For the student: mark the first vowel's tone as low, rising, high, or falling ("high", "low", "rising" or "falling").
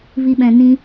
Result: low